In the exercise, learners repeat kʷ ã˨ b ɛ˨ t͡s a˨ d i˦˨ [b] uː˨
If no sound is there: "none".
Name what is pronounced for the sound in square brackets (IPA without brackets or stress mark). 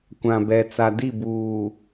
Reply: b